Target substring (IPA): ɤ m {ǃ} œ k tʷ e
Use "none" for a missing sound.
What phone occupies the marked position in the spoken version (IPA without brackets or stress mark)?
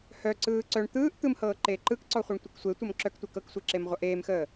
ǁ